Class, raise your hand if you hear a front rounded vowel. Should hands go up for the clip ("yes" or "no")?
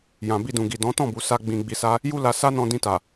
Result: no